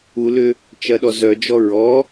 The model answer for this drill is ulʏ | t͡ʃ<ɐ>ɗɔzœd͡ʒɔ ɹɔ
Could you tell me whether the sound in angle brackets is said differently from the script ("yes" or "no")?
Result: no